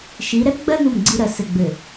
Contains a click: yes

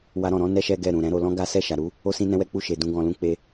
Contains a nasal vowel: yes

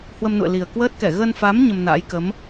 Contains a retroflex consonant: no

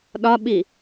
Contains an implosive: yes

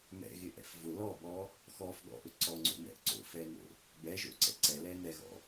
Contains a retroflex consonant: no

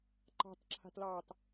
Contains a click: yes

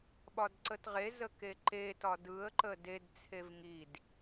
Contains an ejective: no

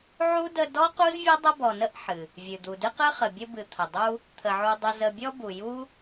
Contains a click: no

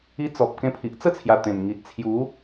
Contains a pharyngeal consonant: no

